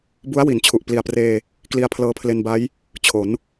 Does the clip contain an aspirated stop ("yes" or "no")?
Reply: yes